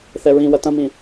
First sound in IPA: θ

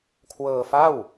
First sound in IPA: kʰ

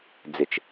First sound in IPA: d͡z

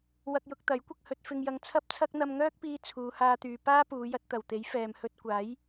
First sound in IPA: w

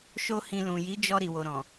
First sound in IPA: ʃ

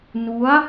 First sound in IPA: n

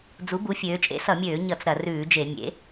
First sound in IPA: d͡z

